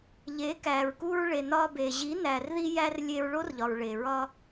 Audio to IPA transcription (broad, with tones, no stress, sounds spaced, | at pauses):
ʎ e˨˦ k æ˨ ɹ k u˧ ɹ ɭ e˨ n ɒ˧ b e˨ ʑ i˨˦ n æ˨ r ð i˧ j æ˧ r lʲ e˧ ɹ ɭ o˦ r ʎ ɒ˨ ɹ ɭ e˨ ɹ ɒ˧